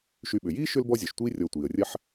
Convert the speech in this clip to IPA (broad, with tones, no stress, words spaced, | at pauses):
ʃy˨ɓʏ˩jiː˥ʃʏ˦l bɔ˥zʲɔ˩ʃtʷiː˥ rʲɔ˨tʷiː˩ə̯rʲɐ˦ħ